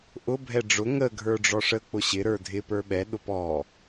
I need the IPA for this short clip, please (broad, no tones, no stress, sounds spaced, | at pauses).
ʔ ʊ bʱ ɛ ɖ͡ʐ ʊ ŋ ə ɡʱ ə˞ ɖ͡ʐ ɔ ʂ ə k͡p ʊ ɕ ɪ ɾ ə˞ dʱ ɪ p ə˞ ɓ ɛ ɗ ʊ p ɔ